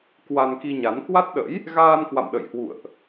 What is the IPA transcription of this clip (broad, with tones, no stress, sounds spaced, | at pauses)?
k w a˧ n k i˧ ɲ a˨˦ n k w a˦˥ t̚ ɗ ə̰˧˥ j | ɣ aː˧ n k w a̰˧˨ m ɗ ə̰˧˨ j h w ṵ˧˨ ə̯ ʔ